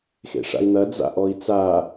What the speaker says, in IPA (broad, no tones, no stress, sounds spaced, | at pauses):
x ḛ ʂ a̰ i̯ n̪ ɐ d͡z a̰ ʔ ɔ i̯ t͡s a